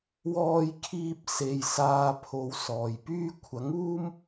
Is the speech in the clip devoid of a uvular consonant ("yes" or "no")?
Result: yes